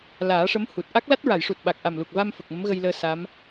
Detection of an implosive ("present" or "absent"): present